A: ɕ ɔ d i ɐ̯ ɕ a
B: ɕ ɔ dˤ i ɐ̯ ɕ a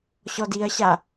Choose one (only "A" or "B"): A